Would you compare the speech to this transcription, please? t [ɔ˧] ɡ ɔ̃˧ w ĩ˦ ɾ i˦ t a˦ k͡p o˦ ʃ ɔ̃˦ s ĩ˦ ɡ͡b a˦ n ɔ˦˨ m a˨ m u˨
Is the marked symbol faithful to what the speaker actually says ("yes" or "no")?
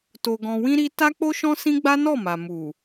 no